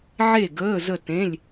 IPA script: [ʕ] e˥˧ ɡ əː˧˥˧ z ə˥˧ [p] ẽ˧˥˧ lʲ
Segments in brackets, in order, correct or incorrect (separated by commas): correct, incorrect